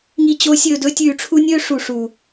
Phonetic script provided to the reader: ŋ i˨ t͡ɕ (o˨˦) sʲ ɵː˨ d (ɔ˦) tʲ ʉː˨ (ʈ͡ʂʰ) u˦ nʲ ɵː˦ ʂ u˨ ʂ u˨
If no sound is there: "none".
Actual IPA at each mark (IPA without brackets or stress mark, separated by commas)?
o˨˦, ɵ˦, ʈ͡ʂʰ